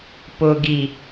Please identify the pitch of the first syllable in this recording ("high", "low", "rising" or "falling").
low